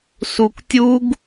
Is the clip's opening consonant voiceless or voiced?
voiceless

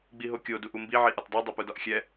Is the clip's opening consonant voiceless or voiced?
voiced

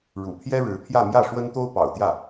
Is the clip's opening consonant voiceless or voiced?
voiced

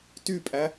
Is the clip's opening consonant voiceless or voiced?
voiceless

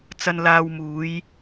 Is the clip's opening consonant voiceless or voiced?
voiceless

